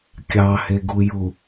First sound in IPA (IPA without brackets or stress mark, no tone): kʲ